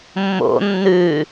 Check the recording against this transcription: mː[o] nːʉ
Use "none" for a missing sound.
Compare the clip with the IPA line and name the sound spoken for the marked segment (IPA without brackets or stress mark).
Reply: o̰